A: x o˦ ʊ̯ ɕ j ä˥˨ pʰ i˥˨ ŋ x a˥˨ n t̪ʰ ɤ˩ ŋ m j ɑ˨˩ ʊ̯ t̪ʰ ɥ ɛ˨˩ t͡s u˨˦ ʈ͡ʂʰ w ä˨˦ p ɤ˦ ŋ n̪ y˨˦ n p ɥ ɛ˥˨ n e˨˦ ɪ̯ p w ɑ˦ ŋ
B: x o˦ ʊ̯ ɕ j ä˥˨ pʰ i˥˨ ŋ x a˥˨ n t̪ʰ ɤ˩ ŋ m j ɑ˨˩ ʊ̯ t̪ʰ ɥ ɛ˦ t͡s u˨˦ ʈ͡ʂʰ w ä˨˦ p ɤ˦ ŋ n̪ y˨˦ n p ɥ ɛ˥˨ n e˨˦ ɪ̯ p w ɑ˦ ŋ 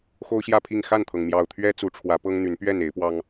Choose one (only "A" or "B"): B